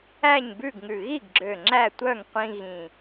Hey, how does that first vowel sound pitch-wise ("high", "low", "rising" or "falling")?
falling